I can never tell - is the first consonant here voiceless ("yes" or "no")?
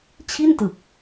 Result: yes